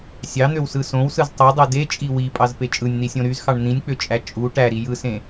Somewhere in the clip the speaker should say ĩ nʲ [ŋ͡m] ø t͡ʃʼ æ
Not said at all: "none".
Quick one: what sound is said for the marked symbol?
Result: k͡p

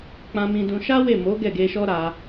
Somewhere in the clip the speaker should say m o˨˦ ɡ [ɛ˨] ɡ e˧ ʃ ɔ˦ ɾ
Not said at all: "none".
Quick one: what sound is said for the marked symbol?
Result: ɛ˦˨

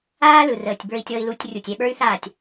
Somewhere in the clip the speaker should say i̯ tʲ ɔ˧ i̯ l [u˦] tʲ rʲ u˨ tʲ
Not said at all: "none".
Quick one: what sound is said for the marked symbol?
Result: u˧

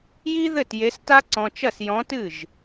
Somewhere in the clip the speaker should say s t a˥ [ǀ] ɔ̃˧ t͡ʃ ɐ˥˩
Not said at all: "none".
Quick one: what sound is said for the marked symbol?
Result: ǀ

